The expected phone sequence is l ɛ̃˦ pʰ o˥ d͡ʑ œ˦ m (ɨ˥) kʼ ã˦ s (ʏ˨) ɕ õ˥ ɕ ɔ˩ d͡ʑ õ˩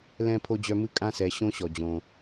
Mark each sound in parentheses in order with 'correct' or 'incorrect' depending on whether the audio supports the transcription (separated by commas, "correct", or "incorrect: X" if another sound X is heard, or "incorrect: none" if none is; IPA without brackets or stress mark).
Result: correct, incorrect: ɛ˨